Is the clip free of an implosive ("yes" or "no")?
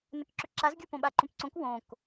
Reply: no